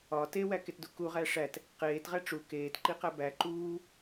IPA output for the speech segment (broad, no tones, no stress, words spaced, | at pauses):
ɒ tewæketdu kuʁæ ʂæt | qeːtʁæ ʈ͡ʂu keːtǃiqæ bæ ǃuː